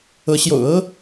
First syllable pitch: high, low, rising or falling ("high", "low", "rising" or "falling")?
rising